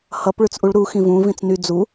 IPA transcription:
h ʌ p ɭ ʉ t͡s ʔ u ɭ ɾ u x ĩ v ũ v ĩ t͡s n y d͡z u

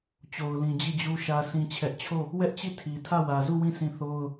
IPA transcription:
t͡ɕ o˨ ʊ̯ l ĩ˨ d͡ʑ i˦˨ d͡ʑ u˦ ʃ ä˦ s ĩ˦ t͡ɕʰ ɛ˦ ʔ t͡ɕʰ o˦˨ | w ɛ˦ ʔ t͡ɕ i˦˨ tʰ i˨ tʰ ä˦˨ w ä˨ z u˦˨ w ĩ˦˨ sʰ ĩ˦˨ θ o˦ ʊ̯

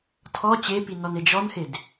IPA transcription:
tʰ ɔ t͡ɕ e p i n ɔ n e d͡ʒ ɔ n h e d

